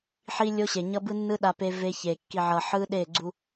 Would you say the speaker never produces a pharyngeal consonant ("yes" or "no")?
no